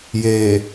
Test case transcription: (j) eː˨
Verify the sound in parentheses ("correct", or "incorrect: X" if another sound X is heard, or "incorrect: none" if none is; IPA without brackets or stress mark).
correct